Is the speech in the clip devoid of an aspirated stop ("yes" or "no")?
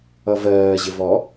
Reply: yes